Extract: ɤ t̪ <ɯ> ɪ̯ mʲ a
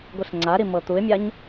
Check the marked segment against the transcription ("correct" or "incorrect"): incorrect